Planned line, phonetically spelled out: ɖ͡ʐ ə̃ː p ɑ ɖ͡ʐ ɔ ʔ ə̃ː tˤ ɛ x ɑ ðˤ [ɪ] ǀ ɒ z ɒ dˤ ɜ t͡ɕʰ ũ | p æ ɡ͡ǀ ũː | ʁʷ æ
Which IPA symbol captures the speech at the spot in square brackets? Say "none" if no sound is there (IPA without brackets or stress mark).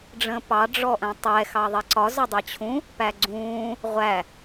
i